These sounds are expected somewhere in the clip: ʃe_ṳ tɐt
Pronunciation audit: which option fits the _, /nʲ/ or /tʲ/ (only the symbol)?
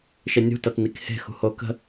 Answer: nʲ